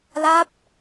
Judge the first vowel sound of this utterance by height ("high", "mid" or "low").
low